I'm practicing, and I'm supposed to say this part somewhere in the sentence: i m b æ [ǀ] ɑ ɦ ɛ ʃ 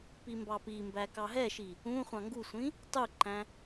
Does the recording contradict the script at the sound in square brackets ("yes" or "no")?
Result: yes